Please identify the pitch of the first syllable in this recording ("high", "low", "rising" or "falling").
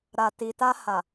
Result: low